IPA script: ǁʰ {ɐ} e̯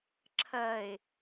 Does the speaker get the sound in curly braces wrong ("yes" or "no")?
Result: no